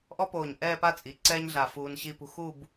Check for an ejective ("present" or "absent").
present